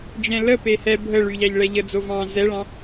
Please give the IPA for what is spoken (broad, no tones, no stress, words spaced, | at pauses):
d͡ʒɛ̃lə pehɛ bʱə ɭyʎɑʎ ɭɛʎə d͡zovɑ̃ zɛɭɑ̃